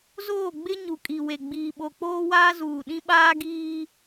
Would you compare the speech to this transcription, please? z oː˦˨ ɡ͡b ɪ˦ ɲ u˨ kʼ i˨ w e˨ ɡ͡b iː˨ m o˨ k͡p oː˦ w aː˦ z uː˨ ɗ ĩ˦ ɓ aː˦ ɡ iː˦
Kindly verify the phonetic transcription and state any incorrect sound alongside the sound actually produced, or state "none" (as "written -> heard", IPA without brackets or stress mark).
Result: m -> ɓ